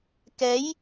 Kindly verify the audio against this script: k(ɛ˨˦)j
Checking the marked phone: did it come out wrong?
no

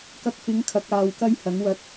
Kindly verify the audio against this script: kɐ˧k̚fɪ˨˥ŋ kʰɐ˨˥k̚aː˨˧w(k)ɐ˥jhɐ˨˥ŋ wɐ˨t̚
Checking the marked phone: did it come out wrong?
no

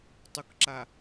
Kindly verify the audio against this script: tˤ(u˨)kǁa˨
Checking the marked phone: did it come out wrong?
no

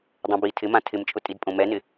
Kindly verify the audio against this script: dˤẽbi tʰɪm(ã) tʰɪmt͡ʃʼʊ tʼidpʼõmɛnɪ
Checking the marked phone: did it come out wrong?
no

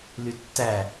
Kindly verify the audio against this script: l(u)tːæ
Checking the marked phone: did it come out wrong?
yes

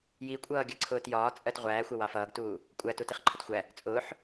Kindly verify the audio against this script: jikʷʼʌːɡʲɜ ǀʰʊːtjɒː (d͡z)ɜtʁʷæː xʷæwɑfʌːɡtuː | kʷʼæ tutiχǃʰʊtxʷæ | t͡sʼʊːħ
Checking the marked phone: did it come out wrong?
yes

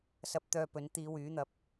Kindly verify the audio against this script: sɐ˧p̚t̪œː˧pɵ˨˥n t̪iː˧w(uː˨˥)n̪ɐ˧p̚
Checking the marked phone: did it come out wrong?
yes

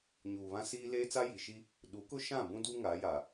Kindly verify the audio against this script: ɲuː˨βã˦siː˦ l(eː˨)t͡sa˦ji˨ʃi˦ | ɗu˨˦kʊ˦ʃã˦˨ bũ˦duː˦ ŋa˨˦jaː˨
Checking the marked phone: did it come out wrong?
yes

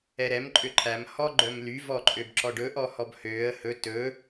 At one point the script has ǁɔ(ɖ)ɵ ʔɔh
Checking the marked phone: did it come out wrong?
no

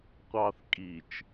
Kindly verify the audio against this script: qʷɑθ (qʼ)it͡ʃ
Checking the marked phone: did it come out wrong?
yes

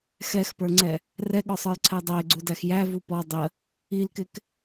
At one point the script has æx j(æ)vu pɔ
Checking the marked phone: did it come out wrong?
no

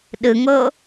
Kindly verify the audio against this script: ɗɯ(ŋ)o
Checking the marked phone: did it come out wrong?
no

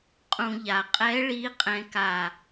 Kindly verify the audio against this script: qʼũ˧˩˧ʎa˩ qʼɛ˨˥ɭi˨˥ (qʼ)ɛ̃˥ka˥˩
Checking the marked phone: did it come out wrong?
no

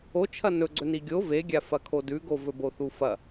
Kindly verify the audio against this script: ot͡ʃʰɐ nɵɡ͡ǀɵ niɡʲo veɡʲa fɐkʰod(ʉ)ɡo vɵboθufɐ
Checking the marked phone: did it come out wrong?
no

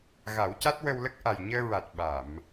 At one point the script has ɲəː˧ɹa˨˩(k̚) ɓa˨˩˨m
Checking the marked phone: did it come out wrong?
yes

